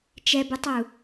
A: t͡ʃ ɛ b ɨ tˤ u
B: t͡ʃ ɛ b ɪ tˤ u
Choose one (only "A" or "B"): A